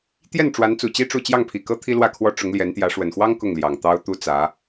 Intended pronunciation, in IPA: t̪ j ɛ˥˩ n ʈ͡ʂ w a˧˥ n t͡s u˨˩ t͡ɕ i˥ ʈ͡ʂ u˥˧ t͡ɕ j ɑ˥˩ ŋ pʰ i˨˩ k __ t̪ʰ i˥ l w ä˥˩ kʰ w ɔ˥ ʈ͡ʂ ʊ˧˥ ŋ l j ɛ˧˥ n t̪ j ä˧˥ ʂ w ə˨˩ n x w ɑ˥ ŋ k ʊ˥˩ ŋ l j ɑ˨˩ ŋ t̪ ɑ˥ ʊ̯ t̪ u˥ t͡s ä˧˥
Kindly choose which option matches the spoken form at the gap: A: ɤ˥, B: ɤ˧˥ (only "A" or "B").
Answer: A